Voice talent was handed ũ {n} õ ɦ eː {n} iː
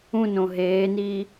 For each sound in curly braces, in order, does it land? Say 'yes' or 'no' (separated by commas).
yes, yes